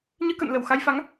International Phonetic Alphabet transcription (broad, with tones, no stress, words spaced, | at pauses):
ɲɨ˧kə̰˧˨n lə˧˩wxa˧jfa˨˦ŋ